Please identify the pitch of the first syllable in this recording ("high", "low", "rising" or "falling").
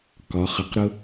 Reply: rising